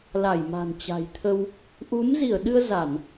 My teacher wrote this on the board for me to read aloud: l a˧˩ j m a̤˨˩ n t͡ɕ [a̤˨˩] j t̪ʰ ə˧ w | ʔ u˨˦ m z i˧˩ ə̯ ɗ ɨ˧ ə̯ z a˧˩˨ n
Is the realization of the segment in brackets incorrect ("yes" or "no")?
no